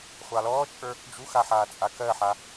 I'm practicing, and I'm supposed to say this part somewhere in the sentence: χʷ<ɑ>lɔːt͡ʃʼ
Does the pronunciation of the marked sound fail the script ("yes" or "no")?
no